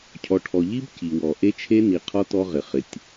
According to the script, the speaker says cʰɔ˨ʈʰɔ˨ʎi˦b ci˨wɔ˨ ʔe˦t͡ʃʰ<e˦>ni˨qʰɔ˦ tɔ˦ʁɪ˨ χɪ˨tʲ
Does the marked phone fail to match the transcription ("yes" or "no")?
no